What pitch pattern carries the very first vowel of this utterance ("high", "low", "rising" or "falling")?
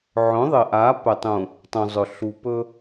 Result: rising